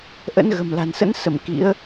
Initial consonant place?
glottal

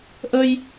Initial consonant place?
glottal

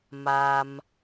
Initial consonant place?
labial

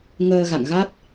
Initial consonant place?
velar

